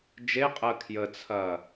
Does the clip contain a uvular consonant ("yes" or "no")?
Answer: yes